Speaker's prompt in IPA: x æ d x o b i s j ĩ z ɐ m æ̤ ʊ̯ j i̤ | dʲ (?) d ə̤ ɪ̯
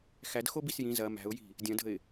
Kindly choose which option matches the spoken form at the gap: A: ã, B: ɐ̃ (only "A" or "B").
B